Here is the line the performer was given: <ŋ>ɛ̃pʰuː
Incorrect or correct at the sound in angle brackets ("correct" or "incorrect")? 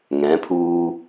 correct